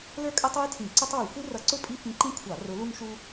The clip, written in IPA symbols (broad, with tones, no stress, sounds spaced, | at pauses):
l ə˞˥ kʼ ə˥ tˤ ə˞˥ j tʰ ĩ˧˩˧ ǀ ə˥ tˤ w u˧˩˧ xʷ i˥ r ʌ˧˥ ǀ ʊ˥ pʼ i˥ f ĩ˧˥ ǃ ĩ˥ kʷʰ ɑ˧˩˧ r ʊ˧˥ l u˥ ŋ ʃ u˥